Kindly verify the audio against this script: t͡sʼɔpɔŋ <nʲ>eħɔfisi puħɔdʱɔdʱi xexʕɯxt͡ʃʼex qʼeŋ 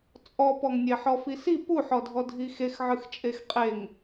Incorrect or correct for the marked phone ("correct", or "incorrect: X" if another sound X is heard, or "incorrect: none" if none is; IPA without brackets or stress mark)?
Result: correct